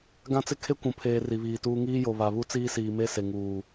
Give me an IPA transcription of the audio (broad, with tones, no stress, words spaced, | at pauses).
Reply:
ɡã˦t͡sɪ˦ kʰe˦ kʷũ˨pʰeː˨ ri˨βiː˨tuː˦ ŋiː˦jo˨ βa˨ βu˦t͡siː˦siː˨me˦ se˨ŋuː˨